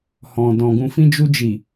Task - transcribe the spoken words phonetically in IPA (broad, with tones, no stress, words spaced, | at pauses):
hɔ̃˨dɔ̃˨ ɡũ˨fĩ˧d͡ʒu˧d͡ʒi˨